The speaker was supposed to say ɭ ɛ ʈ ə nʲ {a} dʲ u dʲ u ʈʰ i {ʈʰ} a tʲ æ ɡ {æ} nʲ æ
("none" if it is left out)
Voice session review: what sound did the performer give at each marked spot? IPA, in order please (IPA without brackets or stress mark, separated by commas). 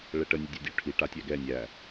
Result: ə, ʈ, ɛ